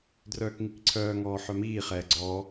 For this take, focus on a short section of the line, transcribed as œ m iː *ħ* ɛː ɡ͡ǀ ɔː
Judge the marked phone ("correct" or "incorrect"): incorrect